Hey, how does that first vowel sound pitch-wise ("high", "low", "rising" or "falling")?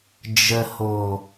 low